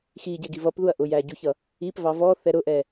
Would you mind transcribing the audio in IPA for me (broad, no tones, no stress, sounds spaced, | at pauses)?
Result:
x i ɟ ɛ ɡ i v ʌ p ð u ɐ̯ ʔ ʊ j æ ɟ u ç ʌ | i p v ɑ v ɔ θ ɛ ɾ ʊ ʔ ɛ